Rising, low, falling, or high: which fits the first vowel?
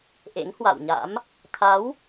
rising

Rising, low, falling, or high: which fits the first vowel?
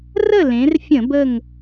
falling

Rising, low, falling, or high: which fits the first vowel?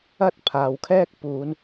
high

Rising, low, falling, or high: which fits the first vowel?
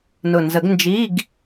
low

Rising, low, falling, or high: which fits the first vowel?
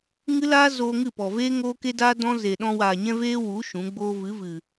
high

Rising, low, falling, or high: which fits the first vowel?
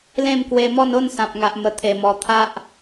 falling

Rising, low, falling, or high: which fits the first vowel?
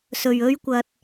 low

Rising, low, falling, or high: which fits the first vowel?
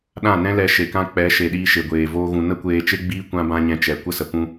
falling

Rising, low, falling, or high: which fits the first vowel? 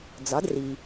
rising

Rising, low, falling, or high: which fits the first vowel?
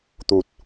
low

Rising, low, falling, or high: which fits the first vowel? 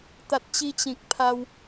low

